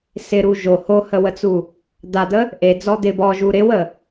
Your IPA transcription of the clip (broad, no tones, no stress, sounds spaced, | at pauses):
s ɪ ɾ u ʒ o h o h ə w ə t͡s u | d̪ a d̪ ə | ʔ e d͡z ɔ d̪ ɪ b ɔ ʒ u ɾ ɪ w ə